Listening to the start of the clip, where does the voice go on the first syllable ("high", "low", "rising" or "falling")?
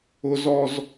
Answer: high